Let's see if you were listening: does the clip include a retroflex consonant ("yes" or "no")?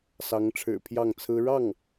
yes